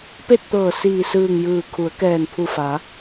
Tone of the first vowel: falling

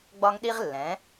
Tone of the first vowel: high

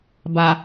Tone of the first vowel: low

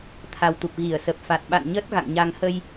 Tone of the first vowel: low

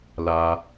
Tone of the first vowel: high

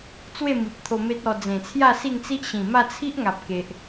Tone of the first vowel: falling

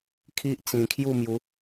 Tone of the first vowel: high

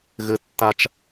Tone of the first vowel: low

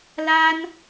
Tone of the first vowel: high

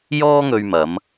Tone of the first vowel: high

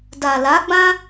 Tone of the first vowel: low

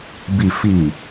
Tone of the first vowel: low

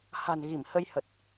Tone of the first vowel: low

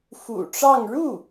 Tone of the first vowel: low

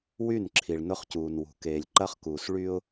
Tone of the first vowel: falling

